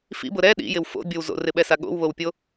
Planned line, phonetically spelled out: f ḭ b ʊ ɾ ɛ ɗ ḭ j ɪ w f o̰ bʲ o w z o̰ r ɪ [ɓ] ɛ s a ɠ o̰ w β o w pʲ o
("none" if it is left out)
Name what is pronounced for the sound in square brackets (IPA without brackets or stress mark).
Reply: ɓ